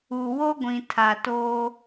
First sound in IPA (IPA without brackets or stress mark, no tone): u